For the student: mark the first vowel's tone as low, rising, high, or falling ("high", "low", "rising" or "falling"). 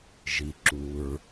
low